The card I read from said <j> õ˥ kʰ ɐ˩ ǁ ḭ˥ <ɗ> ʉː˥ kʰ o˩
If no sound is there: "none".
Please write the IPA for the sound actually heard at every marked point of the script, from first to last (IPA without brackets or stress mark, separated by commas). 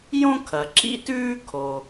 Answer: j, t